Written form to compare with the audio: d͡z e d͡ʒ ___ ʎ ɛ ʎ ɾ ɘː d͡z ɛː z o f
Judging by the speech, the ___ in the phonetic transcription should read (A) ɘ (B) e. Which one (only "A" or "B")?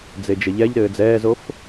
A